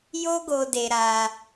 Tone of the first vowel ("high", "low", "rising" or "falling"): high